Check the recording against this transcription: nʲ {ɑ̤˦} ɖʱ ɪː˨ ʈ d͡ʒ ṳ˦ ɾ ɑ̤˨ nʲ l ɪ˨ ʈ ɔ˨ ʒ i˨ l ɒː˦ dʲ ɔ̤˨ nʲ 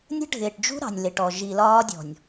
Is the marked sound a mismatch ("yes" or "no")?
yes